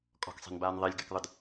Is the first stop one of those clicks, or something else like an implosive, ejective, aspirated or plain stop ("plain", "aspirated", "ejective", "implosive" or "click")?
ejective